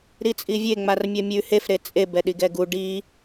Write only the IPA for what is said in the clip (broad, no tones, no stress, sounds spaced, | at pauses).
ɾ i t͡sʼ i vʲ e ŋ͡m a r mʲ ɜ mʲ ʉ h e f ɾ e t͡sʼ e b ɛ ɗ i ɡ ɛ ɡ u ɖ i